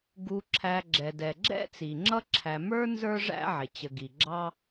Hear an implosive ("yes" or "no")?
no